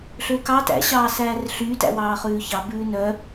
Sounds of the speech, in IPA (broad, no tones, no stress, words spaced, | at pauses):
ɬøkɑ tæ̰ ɕɑːsæːrɬyːt æ̰wɑːχʉːçɑ bʉːnœ